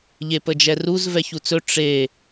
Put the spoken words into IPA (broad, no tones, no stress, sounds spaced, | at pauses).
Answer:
ʎ e p ə d͡ʒ ɛ r u z v ɛ ç u t͡s ɵ ʈ͡ʂ e